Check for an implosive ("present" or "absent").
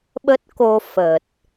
present